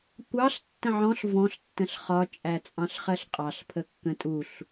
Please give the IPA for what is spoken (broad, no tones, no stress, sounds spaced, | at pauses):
kʷ ɑ ɬ tː ə̃ ʕ ɔ̃ ɬ v ɔ̃ ɬ tː ə̃ ɬ χ ɒ t͡ʃʼ æ t͡sʼ ɑ̃ ɬ χ ɜ ɬ qʼ ɑ ɬ pʰ ə kː ə̃ tʼ u ɬ